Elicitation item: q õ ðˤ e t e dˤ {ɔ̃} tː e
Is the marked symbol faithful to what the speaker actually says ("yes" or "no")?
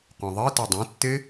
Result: no